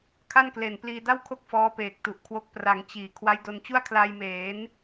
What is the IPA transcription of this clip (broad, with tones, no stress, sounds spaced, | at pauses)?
kʰ a˥˩ n k l e˨˩ n p l iː˧ d a˥˩ w kʰ o˥˩ k̚ f ɔː˦˥ p eː˨˩ k̚ t u˨˩ ʔ kʰ w o˦˥ k̚ p r a˩˦ ŋ t͡ɕ iː˩˦ kʰ w a˦˥ j d o˧ n t͡ɕ u˥˩ a̯ kʰ l a˧ j m eː˩˦ n